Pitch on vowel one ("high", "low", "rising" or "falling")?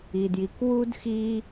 low